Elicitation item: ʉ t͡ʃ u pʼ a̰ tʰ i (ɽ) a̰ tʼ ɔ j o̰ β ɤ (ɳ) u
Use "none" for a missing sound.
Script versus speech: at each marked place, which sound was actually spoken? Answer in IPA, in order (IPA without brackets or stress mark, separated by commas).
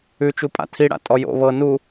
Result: ɽ, n